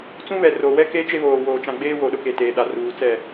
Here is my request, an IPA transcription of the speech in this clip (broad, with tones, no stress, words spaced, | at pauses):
t͡sũ˦βɛ˨ro˨wɛ˦ ke˦t͡ʃe˦βoː˨ woː˨t͡ʃã˨ɡ͡beː˦ wo˨ɗʊ˦ ke˨teː˨ ɗa˨ruː˨ t͡sɛ˦˨